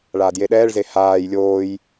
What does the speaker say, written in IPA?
ɭ aː d j e ɗ ɛː ɭ z e h aː j lʲ oː j

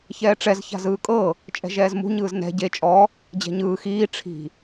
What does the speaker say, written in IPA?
ç ɛː ʈ͡ʂ ɛ z ç a̤ z ɯː kʼ ɤ | t͡ʃʼ ɛ̤ ʒ ɛː z m ṳ ɲ ɯː z n ɛ̤ ɟ e t͡ʃʼ ɔ | d͡ʑ ɛ̤ ɲ ɯː x iː ʈ͡ʂʰ i̤

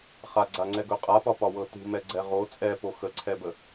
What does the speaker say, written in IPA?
χ a ɡ͡ǀ a ŋ͡ǀ ɛ ɡ ɵ qʼ a p ɒ p ɒ w ɤ t ṳ m ɛ ɡ͡ǀ ɛ ʁ o t͡sʼ ɛ p o x ə ǀʰ ɛ b ə

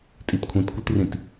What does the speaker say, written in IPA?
tʼ i t kʷʰ ĩ t kʷ i t r ĩ t

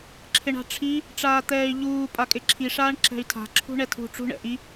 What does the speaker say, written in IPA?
ǁʰ ɪ ɳ a̤ ʈ͡ʂʰ i | ʈ͡ʂ aː t̪ ɛː y̯ ʎ uː pʼ a kʼ ɪ ǁʰ i ʂ aː ɳ ǁ ɛ̤ y̯ tʰ a̤ ǁʰ ṳ ɳ ɛ tʰ ṳ ʈ͡ʂ ṳ ɳ ɛ̰ ʔ i

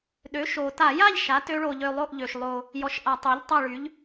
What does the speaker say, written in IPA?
ɗ ø˩˥ ʃ o˨˩ t a˧˩˧ j a˥˨ ʎ ʃ a˩˥ t ø˦˥ ɭ o˧ ʎ ø˧ lˠ o˥˨ ʔ ʎ ø˨˩ ʃ lˠ o˧ | j ɔ˩˥ ʃ ʔ a˧˩˧ tˤ œ˩˥ ʎ tˤ a˥˨ ɭ y˩˥ ʎ

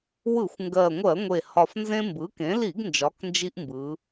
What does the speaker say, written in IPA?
w ɯ˧˩˧ xʷ ŋ ɡ ɜ˨˩ ŋʷ ɜ˧˩˧ ŋʷ e˨˩ h ɒ˨˩ f n z ẽ˦ m b ɯ˩˥ k ẽ˩˥ l i˧˩˧ ɡ n d͡ʒ ɒ˩˧ k n d͡ʒ i˦ ʔ m b ɯ˩˧

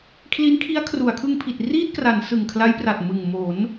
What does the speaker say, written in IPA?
kʰ l i˦˥ n kʰ i˦˥ a̯ kʰ r u˩˦ a̯ kʰ ɯ˧ ŋ pʰ i˨˩ t̚ r iː˥˩ t̚ k r a˩˦ n s ɯ˨˩ ŋ kʰ l a˦˥ j p r a˨˩ t̚ m ɯ˨˩ ŋ m o˩˦ n

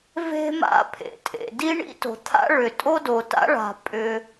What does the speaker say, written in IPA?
v e̤˥ m a̰˥ pʰ ḛ˩ tʼ ḛ˩ d i˥ ɳ ḭ˥ t o̤˩ t̪ʰ a̰˥ ɭ ʏ˩ tʼ o˥ d o˩ t a̰˥ ɭ a̤˩ pʼ ʏ˩

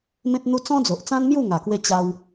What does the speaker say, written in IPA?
m ẽ˦ t̚ n̪ u˦ t͡s ɔ̃˦ d͡z o˨ ʔ t͡s ã˦ n m j u˥˧ ŋ a˨˩ k w e˧ t͡ɕ a˧ w

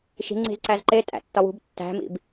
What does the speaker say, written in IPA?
ʃ i̤ ŋ͡ǀ i̤ z ǀ æ z ǃ e tʼ æ̰ tː ɒ w ṳ b tː æ̤ m ḭ b

